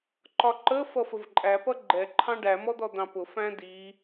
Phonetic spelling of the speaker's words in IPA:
ǃ ɒ ǃ ə f ʌ f ə v ǃʼ æ p ʌ ɡ͡ǃ ɛ ǃʰ ɑ̃ ɖ æ m ɔ d̪ ɔ d̪ ɑ̃ p ʊ f æ̃ d i

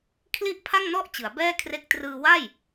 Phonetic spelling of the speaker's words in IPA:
kʰ l i˥˩ ʔ pʰ a˥˩ ŋ n ɔ˥˩ ʔ t͡ɕ ɯ˩˦ a̯ b ɛː˥˩ kʰ r e˦˥ k̚ t r ɯː˧ w a˥˩ j

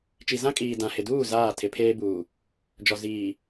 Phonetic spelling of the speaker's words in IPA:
t͡ʃ i˨ z ã˦ kʼ iː˨ d ã˨ h ɪ˨ d uː˦˨ z aː˦˨ tʰ ɪ˨˦ pʰ eː˦ b uː˨ | d͡ʒ ɔ˨ z iː˨

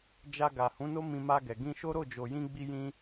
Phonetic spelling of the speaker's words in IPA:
d͡ʒ a˧ ɡ a˨ h ũ˨˦ n o˦ m ĩ˧ m a˧ ɡ ɛ˨ ɡ ĩ˧ ʃ o˦ ɾ o˦˨ d͡ʒ o˨ j ĩ˧ ɡ͡b i˧ j ĩ˦

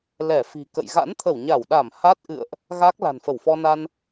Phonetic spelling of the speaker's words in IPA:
l ɛ˧˩ f i̤˨˩ k ə̰˧˨ j ɣ a̰˧˥ n t̪ʰ ə˧˩ w ɲ a˧˩ w ɗ a˧˩ m h a˦˥ t̚ ʔ ɨ̰˧˨ ə̯ ʔ | ɣ a˦˥ k̚ l a̤˨˩ n f ə˧˩ w f ɔ˧ n a˧ n

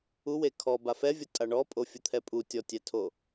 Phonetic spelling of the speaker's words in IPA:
u w e kʰ ɔ b a f ɛ vʲ o tʼ a ɳ ɔ pʼ o fʲ u t̪ʰ ɛ pʼ u tʲ ɔ tʲ ɛ tʰ o

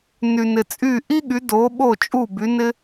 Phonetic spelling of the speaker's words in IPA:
n y˩ n ɪ˩ t͡sʼ y˥˩ ʔ i˥ ɠ y˩˥ d o˩˥ ɓ o˥˩ t͡ʃʼ u˥˩ b y˩˥ n ɪ˥

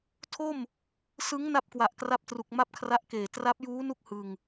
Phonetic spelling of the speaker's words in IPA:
tʰ o˥˩ m | s ɯ˦˥ ŋ n a˥˩ p̚ k w a˨˩ ʔ k r a˦˥ p̚ t r u˨˩ k̚ m a˥˩ p̚ kʰ r a˦˥ ʔ k eː˨˩ t r a˦˥ p̚ j uː˦˥ n u˥˩ k̚ h ɯ˧ ŋ

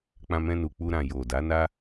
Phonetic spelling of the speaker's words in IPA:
k͡p ã˧ m ɛ̃˧ n u˨ k͡p u˧ ɾ ã˨ j o˨ d a˨˦ n a˦

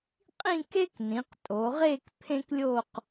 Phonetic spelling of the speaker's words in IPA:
qʼ ĩ˥˧ k e˥ k n ĩ˩˧ q tʼ o˩˧ ʁ e˥˧ k pʰ ẽ˥ k lʲ o˥˧ q

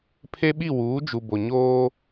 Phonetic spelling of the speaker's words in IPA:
pʰ e˦ ɓ i˦˨ w uː˨˦ d͡ʒ u˨ b o˨ ɲ oː˦

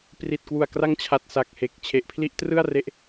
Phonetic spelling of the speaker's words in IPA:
p r i˨˩ t̚ k w u˨˩ a̯ k r a˦˥ ŋ t͡ɕʰ a˨˩ t̚ s a˨˩ k̚ h e˨˩ k̚ t͡ɕʰ e˨˩ ʔ pʰ l i˦˥ ʔ t r ɯ˥˩ a̯ r e˦˥ ʔ

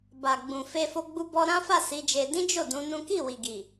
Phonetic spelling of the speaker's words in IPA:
b a˨ ɡ͡b ũ˨ f e˧ f o˧ ɡ͡b u˧ b ɔ˧ ɾ ã˦ f a˦˨ s i˨˦ d͡ʒ e˧ d ĩ˦ d͡ʒ o˦˨ d ũ˨˦ n ũ˦ k i˦˨ w i˨ ɡ i˨

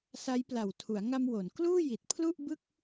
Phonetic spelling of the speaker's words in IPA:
s a˦˥ j p l a˨˩ w tʰ u˩˦ a̯ ŋ a˧ m w o˩˦ n k l uː˥˩ j i˨˩ t̚ pʰ l u˥˩ ʔ b ɯ˥˩ k̚

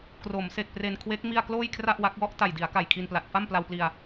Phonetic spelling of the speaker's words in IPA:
k r o˩˦ m s e˨˩ k̚ p r e˧ n kʰ w e˦˥ k̚ m i˥˩ a̯ k l oː˥˩ j kʰ r a˥˩ ʔ w a˦˥ k̚ w ɔ˦˥ ʔ t a˨˩ j d i˩˦ a̯ k a˨˩ j kʰ i˧ n p l a˨˩ t̚ f a˥˩ m p l a˧ w p l i˧ a̯

